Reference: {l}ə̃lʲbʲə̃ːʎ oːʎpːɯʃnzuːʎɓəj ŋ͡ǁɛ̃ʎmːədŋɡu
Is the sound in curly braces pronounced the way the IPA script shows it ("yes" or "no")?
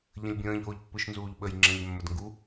no